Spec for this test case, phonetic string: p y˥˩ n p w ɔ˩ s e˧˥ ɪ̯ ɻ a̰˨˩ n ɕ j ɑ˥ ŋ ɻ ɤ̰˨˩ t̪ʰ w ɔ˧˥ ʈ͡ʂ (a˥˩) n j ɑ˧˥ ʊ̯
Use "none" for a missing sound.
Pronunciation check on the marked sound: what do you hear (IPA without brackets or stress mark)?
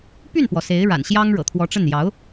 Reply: ə˥˩